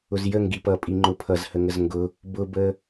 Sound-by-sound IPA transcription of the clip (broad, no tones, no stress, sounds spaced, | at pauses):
ʊ z j ə ŋ ɡ i p ʌ pʼ i ŋ͡ǃ ʊ pʰ ʌ z h ə ŋ ə z ŋ ɡ ʊ | b ʊ b ə